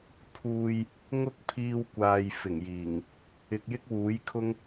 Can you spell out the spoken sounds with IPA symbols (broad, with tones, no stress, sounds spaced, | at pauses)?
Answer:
pʰ uː˨ j | ŋ ʊ˥ k̚ pʰ iː˧ w kʷ aː˨ j f ɪ˨˩ ŋ j iː˨˩ ŋ | ɪ˨ k̚ j ɪ˥ k̚ w uː˨˥ j kʰ ʊ˥ ŋ